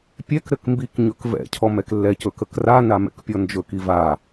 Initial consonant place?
labial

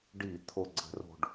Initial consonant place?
retroflex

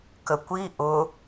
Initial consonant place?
velar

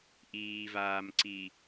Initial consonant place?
glottal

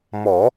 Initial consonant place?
labial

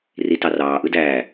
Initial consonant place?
alveolar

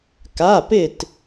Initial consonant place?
velar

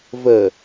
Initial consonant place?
labial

